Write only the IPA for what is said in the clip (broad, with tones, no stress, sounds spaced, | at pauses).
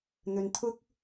n̪ ɵ˨ n t̪ʰ ʊ˥ k̚